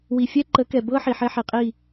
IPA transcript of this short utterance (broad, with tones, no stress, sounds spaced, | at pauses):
w i˨ fʲ ɛ˦ ǃ ə˨˦ k ɛ˨ b ɤ˦ ħ i˨ ħ ɛ˦ ħ i˨ qʼ i˦˨